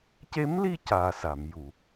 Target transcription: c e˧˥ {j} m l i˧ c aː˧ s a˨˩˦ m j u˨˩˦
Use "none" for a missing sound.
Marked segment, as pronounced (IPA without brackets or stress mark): none